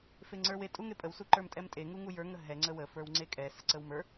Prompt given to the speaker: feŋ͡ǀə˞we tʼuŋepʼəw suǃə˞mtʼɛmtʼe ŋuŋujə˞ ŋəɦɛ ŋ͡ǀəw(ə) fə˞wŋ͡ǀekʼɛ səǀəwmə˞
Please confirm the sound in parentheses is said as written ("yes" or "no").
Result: yes